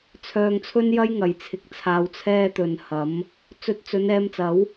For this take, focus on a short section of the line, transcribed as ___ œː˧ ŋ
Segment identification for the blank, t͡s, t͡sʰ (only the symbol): t͡sʰ